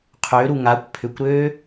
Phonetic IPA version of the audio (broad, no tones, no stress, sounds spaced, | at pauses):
qʰ ø ɾ u ŋ a kʷ pʰ ʏ kʷ ɾ øː